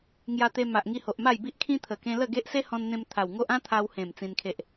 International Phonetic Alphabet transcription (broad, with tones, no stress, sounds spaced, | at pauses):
ŋ j a˧ t̪ e˧ m a˨ ʔ ŋ i˧ h o˨ ʔ m a˥˧ j b i˦ ʔ kʰ ĩ˦ t̪ʰ ə˨˩ k ẽ˧ l ə˥˧ ɡ e˦ ʔ s e˦ h ɔ̃˧ n n̪ ẽ˧ m t̪ʰ a˨˩ w ŋ o˦ ʔ ã˦ t̪ʰ a˧ w h ẽ˨˩ m t͡s ĩ˧ n kʰ e˦ ʔ